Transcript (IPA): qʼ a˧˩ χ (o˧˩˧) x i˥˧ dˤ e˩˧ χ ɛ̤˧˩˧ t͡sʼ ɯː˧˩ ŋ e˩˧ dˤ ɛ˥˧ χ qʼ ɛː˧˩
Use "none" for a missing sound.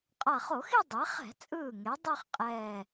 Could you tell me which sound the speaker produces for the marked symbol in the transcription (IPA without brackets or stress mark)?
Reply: o˧˩˧